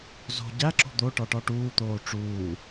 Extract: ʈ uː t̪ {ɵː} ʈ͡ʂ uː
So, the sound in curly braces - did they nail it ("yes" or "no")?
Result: no